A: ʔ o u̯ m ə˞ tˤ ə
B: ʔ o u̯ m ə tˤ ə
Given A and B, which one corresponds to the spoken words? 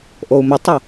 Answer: B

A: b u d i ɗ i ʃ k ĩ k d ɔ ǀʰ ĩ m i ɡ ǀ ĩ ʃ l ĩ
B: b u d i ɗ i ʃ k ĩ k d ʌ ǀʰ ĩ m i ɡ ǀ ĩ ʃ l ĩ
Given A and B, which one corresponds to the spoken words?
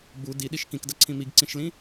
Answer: B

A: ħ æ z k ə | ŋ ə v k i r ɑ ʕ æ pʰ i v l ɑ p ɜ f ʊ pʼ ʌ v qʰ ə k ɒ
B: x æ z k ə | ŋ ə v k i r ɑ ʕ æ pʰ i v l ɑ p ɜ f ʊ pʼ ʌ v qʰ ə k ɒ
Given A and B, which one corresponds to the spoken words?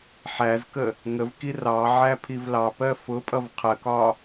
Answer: A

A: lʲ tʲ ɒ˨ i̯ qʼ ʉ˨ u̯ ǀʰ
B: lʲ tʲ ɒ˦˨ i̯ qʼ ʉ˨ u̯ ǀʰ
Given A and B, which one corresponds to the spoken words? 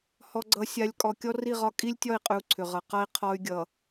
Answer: B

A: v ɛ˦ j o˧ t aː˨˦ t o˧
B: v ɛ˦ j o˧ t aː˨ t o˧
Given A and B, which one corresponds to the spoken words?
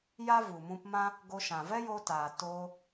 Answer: B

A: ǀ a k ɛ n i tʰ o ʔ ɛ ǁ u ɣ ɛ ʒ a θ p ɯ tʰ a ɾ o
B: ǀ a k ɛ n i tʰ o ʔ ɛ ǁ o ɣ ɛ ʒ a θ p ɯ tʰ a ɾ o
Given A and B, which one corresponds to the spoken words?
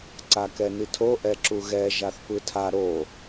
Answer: A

